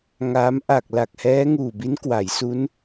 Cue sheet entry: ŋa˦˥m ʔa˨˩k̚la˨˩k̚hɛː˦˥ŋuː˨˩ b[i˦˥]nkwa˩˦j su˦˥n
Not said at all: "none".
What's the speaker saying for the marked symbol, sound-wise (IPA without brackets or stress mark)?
i˦˥